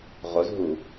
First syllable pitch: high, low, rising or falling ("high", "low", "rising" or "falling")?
rising